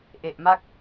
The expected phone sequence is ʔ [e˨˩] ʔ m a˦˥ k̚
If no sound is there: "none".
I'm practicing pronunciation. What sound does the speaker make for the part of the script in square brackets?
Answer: e˨˩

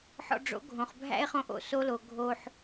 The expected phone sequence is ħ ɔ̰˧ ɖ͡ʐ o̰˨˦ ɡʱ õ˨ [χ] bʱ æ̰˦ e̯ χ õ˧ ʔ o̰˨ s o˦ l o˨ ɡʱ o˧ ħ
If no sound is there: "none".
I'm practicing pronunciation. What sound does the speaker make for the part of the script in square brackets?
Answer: χ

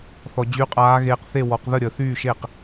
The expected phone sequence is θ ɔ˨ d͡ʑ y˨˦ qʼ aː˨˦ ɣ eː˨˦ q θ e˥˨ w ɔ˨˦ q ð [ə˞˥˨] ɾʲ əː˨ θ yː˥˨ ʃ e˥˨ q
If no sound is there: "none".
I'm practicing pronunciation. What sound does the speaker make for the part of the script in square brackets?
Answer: ə˥˨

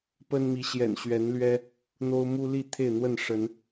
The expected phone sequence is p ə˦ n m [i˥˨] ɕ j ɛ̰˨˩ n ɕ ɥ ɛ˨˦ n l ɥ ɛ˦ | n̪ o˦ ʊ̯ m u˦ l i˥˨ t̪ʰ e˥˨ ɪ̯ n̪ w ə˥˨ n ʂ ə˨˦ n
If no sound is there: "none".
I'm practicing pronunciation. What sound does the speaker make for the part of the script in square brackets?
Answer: i˨˦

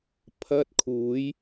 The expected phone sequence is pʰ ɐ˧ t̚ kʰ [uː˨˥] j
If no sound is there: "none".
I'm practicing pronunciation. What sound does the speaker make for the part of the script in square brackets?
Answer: uː˨˧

